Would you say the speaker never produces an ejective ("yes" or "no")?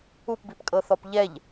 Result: no